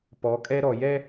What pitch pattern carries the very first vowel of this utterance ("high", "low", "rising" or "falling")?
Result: rising